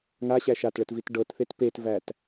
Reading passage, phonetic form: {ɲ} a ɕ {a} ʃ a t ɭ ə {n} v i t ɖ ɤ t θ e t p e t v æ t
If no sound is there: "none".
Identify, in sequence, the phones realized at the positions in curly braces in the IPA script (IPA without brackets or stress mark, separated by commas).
ŋ, æ, t